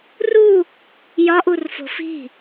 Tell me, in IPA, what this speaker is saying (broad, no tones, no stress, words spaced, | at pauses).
ru | jɒʔurfo̤ fi̤